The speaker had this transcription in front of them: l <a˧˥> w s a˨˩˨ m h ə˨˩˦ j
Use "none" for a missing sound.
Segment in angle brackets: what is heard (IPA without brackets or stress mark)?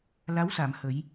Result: a˧˥